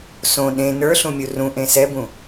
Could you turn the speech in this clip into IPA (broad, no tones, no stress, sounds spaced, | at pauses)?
s õ ɗ ẽ n ə˞ ɬ ũ mʲ u r ũ ʔ ẽ s ɛ b ũ